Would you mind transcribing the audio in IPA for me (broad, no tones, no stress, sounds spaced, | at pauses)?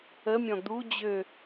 ə mʲ ɔ̃ d̪ u d͡ʑ ø